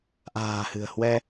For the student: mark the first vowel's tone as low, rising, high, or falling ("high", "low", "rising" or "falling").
low